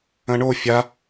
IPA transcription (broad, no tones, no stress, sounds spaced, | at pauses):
ɐ̃ ɳ o fʲ a